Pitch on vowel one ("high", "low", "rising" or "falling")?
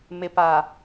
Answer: low